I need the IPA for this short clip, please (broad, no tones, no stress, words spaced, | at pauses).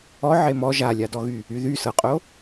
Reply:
ɔ ʕemɔ ʒalʲadɔɣy | yðy sɤqʼo